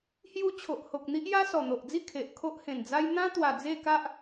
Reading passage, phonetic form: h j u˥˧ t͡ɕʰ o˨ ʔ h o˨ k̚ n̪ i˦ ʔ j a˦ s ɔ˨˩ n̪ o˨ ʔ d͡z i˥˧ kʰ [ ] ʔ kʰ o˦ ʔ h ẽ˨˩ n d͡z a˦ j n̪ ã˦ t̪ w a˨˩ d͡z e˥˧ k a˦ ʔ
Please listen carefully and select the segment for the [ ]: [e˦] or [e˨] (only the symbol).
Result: e˨